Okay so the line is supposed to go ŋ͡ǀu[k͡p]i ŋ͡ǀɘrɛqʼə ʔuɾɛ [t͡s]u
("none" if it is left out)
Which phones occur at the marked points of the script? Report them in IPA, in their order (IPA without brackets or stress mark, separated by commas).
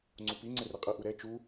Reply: p, t͡ʃ